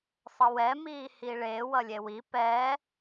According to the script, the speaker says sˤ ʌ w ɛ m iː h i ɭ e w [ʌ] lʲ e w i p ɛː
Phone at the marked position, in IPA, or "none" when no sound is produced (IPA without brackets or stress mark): ʌ